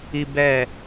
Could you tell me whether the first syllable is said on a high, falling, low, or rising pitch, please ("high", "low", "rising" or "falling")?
low